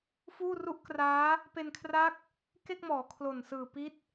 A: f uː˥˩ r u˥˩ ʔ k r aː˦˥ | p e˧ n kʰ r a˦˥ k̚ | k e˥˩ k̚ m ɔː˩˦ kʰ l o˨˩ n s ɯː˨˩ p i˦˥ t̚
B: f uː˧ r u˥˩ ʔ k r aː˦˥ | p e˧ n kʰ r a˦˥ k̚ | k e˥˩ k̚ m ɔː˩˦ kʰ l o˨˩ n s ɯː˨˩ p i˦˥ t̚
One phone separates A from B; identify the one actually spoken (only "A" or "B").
A